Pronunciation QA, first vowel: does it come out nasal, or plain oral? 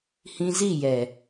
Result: nasal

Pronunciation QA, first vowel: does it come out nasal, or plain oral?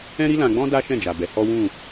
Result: nasal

